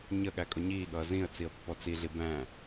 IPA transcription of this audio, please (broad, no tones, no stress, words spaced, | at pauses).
ɲə ɠækʼʊɲiːɠʌː zĩə̯ t͡siə̯pːɔt͡siɮi bæ̃